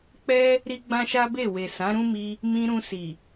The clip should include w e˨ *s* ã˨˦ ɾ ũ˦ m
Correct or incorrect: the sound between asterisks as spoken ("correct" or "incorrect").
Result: correct